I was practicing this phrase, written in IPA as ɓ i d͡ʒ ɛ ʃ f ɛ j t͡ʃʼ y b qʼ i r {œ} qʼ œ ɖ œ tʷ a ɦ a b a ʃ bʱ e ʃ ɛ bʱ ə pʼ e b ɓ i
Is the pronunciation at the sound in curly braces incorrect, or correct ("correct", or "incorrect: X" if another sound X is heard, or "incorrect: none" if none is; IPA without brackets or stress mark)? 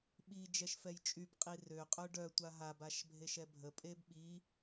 incorrect: ø